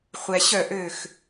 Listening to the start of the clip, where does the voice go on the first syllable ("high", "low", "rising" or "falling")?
low